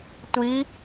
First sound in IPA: tʷ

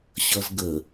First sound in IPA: ɕ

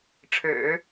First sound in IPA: ʈ͡ʂʰ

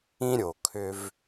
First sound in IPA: ĩ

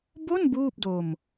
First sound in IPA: b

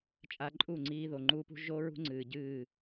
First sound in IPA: t͡ʃʼ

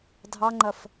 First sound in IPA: dʱ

